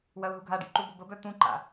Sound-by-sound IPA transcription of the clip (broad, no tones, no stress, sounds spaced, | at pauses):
w ɐ ʊ̯ ɦ u ɡʱ a ɖ ḭ ǃ u b ʊ b ə b œ t̪ ũ ǃ a̰